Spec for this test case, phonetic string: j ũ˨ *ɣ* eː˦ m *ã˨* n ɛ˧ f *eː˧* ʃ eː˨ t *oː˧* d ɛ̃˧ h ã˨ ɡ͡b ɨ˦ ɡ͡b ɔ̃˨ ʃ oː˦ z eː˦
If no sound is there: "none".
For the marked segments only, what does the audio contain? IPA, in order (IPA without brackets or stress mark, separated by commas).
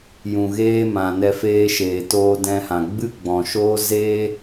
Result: ɣ, ã˨, eː˧, oː˧